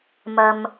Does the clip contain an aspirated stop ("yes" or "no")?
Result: no